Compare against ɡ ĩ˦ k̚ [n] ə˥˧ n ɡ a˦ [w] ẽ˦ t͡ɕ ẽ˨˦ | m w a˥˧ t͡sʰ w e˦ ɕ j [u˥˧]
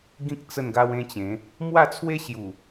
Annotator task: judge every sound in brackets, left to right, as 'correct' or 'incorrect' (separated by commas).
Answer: incorrect, correct, incorrect